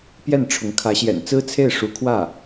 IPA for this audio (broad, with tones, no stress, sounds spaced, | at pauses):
p j ɛ˥˩ n ʈ͡ʂʰ ʊ˧˥ ŋ kʰ ä˧˥ ɕ j ɛ̰˨˩ n t͡s ɹ̩˥ t͡sʰ e˥˩ ɪ̯ ʂ u˧˥ kʰ w ä˥˩